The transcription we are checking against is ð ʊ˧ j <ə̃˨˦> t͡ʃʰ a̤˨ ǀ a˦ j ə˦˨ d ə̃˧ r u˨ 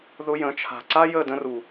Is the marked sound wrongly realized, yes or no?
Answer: no